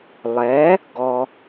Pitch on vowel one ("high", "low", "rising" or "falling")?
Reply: rising